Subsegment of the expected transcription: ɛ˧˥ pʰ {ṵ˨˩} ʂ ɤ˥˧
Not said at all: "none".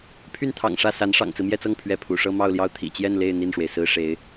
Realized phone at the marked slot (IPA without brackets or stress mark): ṵ˨˩